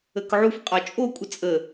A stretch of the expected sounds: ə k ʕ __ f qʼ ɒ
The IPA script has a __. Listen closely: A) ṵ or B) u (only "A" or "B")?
B